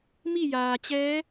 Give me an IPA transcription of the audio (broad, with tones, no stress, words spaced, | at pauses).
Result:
mi˥˨jaː˩t͡ɕɛː˧˥